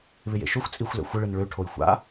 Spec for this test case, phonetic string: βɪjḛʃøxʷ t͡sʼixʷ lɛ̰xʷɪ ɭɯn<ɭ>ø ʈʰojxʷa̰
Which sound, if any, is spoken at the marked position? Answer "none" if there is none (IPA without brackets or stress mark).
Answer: ɭ